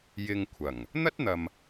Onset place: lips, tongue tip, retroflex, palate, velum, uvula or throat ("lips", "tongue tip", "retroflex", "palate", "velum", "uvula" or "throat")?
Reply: palate